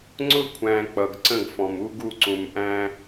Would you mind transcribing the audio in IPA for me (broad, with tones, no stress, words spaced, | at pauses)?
ŋ͡ǀʊ˧kʷʰæ̃˨ k͡pʌ˨ɡǀə̃˦˨ɡfɔ̃˨m u˦ɡu˦˨ ǀũ˨mʔæ̃˦